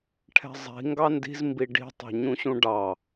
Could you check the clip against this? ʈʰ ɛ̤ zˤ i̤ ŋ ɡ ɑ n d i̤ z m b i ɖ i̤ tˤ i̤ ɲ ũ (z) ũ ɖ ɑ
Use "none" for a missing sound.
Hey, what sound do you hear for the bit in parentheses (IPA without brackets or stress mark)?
ɕ